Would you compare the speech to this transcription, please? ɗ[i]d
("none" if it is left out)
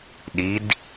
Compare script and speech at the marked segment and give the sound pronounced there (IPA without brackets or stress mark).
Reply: i